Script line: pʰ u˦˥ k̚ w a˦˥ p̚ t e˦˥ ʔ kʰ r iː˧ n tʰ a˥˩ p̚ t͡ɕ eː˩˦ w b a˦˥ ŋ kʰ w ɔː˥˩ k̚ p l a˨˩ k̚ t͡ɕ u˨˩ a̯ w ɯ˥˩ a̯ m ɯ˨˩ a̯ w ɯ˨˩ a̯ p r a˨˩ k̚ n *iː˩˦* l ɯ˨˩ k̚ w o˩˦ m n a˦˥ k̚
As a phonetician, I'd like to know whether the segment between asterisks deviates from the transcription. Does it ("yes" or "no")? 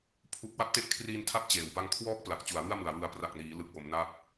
no